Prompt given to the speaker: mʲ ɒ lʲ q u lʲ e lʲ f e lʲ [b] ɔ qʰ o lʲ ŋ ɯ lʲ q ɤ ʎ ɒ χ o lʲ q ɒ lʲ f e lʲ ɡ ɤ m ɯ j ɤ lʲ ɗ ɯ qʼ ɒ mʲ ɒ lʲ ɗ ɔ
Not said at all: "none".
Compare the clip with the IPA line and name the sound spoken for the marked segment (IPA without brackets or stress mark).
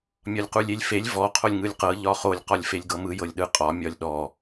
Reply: v